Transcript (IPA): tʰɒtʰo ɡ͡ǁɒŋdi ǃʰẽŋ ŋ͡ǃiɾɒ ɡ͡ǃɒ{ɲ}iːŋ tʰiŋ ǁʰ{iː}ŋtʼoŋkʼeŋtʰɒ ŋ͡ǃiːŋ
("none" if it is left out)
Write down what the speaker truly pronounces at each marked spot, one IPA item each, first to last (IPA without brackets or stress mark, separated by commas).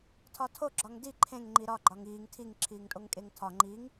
ŋ, iː